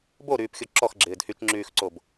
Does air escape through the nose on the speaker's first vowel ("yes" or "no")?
no